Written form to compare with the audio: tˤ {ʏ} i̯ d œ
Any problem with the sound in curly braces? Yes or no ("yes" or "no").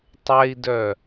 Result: yes